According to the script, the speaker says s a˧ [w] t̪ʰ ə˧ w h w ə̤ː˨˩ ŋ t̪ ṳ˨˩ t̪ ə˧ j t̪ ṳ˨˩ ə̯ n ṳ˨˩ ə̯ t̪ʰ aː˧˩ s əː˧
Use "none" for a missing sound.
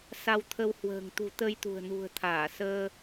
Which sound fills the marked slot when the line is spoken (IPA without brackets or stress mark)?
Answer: w